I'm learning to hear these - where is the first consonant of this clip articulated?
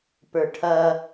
lips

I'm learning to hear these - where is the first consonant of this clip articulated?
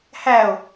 throat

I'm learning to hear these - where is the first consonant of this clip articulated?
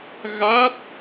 velum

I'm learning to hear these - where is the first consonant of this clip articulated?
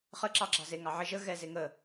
uvula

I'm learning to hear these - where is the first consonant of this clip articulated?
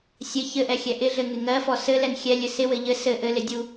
tongue tip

